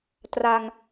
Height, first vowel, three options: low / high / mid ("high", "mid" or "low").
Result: low